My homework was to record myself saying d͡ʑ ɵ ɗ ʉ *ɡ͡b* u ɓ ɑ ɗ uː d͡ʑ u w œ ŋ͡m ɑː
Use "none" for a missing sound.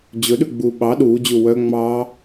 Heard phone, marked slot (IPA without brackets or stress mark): ɡ͡b